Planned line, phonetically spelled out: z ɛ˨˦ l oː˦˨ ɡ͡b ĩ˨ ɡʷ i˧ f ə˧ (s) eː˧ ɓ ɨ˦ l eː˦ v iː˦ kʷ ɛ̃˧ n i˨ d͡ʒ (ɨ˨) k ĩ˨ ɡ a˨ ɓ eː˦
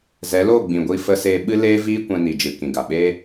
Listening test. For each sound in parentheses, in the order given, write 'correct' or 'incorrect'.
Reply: correct, correct

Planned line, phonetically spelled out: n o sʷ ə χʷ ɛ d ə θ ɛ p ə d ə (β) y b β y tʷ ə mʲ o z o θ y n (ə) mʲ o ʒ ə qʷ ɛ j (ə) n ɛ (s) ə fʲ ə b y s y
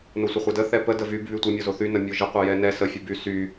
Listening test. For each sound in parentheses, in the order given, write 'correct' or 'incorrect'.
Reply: incorrect, correct, incorrect, correct

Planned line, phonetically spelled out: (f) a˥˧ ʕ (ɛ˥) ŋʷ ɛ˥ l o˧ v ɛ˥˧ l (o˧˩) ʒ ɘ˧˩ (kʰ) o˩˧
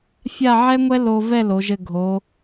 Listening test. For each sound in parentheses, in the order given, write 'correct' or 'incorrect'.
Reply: incorrect, correct, incorrect, incorrect

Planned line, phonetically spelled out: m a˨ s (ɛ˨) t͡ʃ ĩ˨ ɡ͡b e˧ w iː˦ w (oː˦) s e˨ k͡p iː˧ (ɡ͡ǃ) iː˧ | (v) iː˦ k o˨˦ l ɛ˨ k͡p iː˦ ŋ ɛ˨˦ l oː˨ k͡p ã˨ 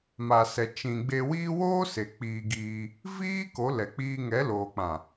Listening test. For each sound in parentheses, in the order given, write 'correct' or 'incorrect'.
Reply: correct, correct, incorrect, correct

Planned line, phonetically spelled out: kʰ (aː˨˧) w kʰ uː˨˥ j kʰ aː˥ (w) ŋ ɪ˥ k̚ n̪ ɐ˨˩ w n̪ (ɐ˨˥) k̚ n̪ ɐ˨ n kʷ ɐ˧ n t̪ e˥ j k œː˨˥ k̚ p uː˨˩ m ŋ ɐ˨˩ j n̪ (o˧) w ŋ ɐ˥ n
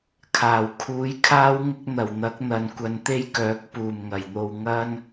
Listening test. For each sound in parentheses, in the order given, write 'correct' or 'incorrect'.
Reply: incorrect, correct, correct, incorrect

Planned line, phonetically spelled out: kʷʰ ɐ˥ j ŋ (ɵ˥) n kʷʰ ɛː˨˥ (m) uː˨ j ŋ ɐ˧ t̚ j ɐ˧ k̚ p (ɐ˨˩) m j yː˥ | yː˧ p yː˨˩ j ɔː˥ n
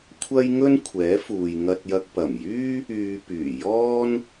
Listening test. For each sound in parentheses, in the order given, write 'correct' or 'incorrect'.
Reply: correct, incorrect, correct

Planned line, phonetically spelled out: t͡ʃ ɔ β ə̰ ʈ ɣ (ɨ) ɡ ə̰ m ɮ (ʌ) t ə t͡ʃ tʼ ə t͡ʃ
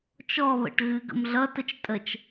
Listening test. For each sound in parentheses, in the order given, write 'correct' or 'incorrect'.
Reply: correct, correct

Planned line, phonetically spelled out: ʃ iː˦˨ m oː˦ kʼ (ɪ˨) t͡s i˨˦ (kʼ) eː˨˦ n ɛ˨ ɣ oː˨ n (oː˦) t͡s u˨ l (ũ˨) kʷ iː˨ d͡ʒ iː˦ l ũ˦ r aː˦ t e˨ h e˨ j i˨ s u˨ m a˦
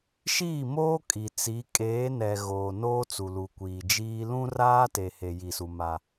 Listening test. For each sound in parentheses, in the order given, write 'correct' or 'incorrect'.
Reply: incorrect, correct, correct, incorrect

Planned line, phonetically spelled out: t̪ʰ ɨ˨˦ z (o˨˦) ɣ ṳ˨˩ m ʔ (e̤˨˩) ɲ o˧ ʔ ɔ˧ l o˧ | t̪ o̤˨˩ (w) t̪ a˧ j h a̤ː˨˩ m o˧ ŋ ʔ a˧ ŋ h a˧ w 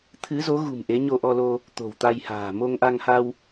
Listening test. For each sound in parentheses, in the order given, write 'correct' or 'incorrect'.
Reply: correct, incorrect, correct

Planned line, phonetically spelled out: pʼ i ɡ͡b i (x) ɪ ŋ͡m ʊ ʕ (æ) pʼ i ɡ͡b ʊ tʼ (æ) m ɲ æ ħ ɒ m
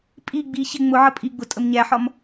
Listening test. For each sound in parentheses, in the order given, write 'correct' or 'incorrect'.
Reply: incorrect, incorrect, incorrect

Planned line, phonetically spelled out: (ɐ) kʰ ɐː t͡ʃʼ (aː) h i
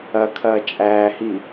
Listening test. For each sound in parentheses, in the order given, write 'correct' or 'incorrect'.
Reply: correct, incorrect

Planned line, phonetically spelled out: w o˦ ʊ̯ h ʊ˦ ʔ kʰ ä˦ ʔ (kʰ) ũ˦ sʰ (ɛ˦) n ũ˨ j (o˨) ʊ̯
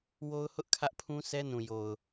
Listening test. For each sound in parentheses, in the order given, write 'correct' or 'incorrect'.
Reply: incorrect, correct, correct

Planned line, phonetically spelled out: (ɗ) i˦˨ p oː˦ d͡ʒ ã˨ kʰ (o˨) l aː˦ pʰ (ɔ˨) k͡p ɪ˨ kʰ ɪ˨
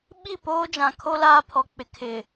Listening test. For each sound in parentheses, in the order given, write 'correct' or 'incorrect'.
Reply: incorrect, incorrect, correct

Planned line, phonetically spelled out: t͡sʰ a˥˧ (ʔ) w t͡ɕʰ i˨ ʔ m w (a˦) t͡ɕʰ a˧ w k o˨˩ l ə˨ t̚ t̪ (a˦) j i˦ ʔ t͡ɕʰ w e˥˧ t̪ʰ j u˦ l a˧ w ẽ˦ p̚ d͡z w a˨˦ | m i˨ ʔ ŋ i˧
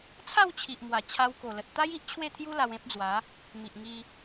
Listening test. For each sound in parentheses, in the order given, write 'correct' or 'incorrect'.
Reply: incorrect, incorrect, correct

